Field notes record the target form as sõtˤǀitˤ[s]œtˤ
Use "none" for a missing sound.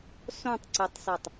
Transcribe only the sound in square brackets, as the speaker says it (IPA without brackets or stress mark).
s